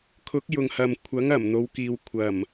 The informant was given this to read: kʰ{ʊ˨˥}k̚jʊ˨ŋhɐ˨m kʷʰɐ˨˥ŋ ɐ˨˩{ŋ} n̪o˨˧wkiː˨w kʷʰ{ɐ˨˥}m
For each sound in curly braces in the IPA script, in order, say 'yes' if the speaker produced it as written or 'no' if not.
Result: yes, no, no

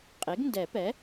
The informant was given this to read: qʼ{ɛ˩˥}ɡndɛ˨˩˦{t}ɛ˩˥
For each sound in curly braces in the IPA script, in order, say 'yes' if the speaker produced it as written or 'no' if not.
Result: no, no

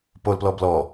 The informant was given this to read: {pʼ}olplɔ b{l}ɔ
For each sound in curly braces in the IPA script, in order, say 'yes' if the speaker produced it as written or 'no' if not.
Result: no, yes

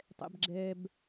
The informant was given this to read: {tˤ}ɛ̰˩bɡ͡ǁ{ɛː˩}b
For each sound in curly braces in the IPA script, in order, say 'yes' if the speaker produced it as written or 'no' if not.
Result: yes, yes

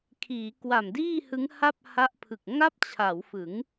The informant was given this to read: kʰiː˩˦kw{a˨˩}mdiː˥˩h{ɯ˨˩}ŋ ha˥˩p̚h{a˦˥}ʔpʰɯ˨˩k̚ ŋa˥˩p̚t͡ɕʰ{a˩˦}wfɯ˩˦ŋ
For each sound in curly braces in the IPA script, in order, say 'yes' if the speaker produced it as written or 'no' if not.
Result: yes, no, yes, yes

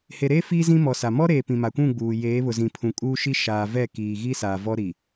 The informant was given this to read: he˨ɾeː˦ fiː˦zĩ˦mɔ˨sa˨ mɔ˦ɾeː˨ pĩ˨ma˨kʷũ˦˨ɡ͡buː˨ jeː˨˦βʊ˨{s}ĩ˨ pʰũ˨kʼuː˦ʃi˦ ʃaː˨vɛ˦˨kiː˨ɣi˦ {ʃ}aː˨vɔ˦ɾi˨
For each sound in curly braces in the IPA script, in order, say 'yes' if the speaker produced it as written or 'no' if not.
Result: no, no

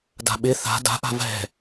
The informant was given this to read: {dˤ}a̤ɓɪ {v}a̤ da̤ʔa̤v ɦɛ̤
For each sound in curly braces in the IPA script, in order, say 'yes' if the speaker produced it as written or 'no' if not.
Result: no, no

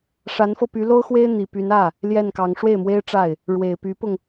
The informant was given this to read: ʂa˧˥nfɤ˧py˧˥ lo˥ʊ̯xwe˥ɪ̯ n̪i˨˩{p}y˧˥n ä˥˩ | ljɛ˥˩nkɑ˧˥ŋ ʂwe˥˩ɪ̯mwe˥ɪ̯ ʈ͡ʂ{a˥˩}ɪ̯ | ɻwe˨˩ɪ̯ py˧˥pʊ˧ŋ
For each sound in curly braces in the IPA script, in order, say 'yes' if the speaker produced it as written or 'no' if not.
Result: yes, yes

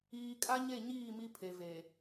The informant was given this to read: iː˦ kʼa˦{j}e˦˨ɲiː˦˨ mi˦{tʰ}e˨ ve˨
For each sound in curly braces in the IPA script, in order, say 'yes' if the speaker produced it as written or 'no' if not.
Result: no, no

